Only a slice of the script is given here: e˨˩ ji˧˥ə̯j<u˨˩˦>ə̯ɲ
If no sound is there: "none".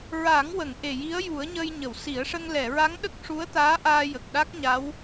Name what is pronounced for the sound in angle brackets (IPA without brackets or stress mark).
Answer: u˨˩˦